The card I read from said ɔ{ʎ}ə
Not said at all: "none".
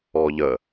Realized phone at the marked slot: ʎ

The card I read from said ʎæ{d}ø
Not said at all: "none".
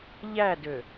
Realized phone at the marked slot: d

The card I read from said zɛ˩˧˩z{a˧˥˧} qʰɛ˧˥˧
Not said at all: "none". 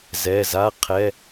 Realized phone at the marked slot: a˧˥˧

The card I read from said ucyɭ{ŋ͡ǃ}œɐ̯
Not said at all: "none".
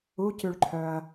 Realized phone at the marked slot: ǃʰ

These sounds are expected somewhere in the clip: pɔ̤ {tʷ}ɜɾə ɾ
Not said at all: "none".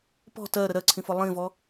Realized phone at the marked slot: t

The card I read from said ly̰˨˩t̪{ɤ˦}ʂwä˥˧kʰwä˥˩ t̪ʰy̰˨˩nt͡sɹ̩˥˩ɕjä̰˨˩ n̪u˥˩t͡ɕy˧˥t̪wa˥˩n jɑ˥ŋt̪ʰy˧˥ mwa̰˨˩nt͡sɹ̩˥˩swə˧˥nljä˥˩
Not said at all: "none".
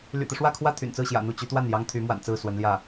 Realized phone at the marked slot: ɤ˦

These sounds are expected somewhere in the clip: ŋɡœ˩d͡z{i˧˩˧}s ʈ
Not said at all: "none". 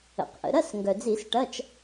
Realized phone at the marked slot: i˧˩˧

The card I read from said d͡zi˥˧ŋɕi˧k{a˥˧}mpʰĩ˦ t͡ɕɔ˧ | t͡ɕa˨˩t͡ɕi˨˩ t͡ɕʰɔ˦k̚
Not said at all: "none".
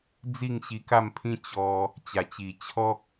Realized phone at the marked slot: a˥˧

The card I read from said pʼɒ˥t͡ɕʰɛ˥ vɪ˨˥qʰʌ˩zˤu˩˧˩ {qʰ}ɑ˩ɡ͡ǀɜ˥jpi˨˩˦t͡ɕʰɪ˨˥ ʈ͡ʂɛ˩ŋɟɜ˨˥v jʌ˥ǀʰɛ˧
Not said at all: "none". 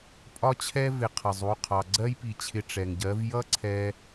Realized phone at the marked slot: qʰ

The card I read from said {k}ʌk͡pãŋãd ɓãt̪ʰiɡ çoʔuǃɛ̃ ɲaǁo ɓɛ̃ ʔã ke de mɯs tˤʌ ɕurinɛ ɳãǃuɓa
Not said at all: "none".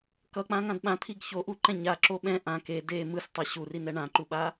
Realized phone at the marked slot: k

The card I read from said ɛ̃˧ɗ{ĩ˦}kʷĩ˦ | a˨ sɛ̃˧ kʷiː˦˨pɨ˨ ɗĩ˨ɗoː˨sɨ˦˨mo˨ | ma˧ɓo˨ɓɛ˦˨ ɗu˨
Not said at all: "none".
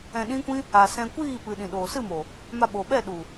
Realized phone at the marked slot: ĩ˦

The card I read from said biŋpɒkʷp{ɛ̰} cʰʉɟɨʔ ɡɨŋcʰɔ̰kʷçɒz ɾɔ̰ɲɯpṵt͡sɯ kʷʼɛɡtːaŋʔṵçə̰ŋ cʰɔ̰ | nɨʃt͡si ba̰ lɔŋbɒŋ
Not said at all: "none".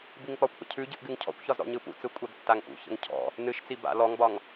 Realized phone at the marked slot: ə̰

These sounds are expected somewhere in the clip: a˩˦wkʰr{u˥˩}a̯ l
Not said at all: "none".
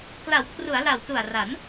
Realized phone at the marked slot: u˩˦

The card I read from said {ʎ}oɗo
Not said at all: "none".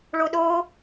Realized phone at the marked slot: ɭ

